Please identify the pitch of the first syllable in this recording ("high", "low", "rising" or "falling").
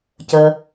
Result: low